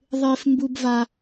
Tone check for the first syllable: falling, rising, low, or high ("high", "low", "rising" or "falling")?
high